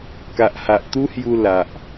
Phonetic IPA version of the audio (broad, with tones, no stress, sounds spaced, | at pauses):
k a˨ ʔ h a˨ ʔ t̪ u˦ h j u˧ l a˨ ʔ